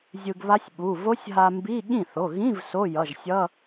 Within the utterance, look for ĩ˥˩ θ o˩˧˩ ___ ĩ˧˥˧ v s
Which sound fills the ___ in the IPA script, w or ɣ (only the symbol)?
ɣ